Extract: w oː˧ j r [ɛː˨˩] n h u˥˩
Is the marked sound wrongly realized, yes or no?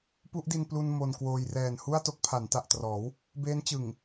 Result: no